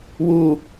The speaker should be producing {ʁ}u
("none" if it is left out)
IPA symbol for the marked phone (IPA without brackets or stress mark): w